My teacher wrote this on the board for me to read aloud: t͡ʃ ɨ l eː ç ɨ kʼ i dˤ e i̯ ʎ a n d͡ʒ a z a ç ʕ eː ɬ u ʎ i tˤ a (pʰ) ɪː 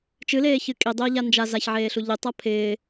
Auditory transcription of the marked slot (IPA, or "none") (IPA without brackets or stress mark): pʰ